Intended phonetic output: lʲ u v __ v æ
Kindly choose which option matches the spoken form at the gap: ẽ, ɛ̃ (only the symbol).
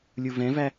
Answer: ɛ̃